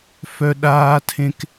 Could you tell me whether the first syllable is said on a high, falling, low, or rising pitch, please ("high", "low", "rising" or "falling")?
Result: high